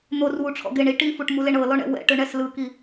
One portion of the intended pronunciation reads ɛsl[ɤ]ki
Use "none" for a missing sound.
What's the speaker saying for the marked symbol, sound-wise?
ɯ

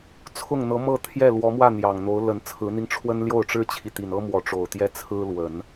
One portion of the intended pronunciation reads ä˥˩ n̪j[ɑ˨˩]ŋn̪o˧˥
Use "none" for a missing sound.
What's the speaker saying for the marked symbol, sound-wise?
ɑ˨˩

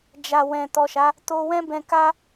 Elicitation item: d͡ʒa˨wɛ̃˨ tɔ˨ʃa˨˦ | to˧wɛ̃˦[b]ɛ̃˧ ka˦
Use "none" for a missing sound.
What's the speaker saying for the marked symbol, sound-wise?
b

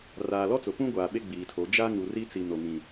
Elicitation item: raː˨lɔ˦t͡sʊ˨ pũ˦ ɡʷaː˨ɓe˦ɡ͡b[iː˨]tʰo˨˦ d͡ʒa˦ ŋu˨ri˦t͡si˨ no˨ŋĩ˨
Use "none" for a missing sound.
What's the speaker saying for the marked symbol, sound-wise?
iː˨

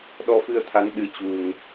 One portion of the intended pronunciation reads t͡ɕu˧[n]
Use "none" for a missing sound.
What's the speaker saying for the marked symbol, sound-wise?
ŋ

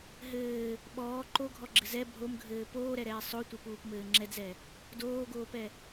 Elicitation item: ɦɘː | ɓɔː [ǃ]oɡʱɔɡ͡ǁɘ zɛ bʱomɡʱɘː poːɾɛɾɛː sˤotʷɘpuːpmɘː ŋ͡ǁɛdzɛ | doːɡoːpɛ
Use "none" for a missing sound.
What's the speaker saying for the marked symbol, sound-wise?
ǃ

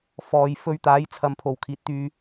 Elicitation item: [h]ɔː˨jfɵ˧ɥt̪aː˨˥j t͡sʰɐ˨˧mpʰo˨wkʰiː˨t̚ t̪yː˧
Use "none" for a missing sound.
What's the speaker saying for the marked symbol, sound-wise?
f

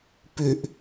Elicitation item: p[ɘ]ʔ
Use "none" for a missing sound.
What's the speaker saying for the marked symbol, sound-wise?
ø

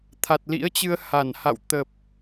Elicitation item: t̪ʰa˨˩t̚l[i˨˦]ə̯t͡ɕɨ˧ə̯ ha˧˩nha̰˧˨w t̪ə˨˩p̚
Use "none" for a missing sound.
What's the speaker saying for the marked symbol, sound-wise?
ḭ˧˥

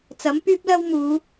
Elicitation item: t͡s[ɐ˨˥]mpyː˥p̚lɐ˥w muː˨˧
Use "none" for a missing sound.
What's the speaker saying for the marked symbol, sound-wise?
ɐ˨˥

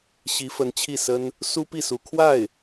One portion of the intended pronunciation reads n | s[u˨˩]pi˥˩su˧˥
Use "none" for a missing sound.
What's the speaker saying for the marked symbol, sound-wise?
u˥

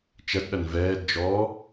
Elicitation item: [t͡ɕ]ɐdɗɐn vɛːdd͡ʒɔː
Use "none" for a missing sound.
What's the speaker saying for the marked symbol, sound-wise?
t͡ʃ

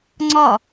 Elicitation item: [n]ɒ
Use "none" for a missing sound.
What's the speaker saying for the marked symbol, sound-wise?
ŋ͡ǀ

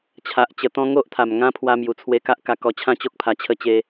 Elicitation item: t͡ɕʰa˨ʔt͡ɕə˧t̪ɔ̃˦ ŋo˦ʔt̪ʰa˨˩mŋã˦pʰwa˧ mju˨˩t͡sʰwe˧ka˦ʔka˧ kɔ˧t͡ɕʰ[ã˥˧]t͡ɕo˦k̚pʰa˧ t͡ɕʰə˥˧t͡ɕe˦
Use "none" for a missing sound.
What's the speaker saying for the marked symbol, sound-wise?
ã˥˧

